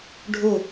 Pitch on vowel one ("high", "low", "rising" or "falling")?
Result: falling